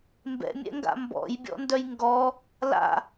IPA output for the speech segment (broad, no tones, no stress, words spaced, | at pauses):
mbɛ̰mʲɛ̰ŋɡa̰ mbɔ̰jbʲɔ̰ndœj ŋɡɔ | la̰